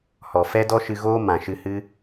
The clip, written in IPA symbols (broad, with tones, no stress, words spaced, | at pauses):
hɔ˨ fɛ˦dɔ˦ʃɨ˧ɣoː˦ mã˨ʃɨ˧hɨ˦